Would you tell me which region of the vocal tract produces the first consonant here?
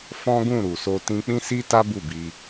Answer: lips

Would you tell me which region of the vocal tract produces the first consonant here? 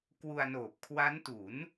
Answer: velum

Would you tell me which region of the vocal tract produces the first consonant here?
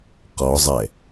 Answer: uvula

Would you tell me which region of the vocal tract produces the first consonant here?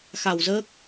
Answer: velum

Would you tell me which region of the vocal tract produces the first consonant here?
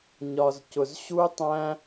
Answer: palate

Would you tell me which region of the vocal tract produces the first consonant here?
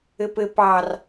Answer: lips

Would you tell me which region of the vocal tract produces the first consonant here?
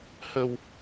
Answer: throat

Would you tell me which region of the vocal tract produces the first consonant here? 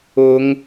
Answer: velum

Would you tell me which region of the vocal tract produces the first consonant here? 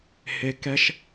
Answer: throat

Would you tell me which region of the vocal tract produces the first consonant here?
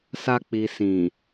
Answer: tongue tip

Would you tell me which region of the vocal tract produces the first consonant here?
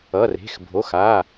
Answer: tongue tip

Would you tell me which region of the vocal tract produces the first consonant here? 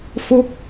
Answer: lips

